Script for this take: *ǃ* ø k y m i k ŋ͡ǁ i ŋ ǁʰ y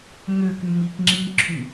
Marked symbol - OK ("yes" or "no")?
no